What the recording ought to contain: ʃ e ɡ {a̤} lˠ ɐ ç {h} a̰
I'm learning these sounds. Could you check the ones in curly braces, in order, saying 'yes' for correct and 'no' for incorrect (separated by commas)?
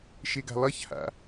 yes, yes